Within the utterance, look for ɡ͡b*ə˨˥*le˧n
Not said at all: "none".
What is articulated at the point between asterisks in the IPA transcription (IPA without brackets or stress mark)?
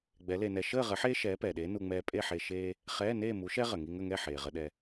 ɛ˨˥